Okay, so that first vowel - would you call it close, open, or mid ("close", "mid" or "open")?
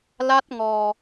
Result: open